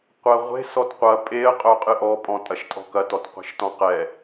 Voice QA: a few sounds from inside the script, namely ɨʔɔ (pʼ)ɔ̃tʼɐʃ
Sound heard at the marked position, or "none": pʼ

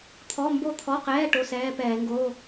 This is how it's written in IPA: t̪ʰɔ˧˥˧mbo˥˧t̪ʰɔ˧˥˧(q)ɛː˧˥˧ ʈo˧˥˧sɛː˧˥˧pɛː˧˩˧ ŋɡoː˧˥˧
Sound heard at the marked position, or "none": q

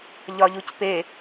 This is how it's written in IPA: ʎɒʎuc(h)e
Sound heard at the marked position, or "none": p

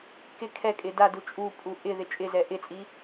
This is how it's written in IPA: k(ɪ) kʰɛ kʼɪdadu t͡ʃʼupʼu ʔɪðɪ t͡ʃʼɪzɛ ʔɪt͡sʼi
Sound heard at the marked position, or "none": ɪ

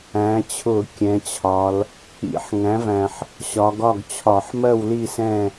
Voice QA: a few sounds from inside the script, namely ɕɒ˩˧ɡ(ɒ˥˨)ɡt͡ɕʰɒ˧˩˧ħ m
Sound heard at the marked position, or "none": ɒ˥˨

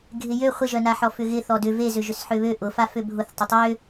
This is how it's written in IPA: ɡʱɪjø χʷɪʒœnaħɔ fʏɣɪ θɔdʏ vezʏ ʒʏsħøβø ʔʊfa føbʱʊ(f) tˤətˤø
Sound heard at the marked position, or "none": θ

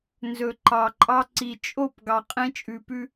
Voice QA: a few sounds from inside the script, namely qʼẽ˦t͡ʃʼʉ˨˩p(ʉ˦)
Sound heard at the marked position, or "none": ʉ˦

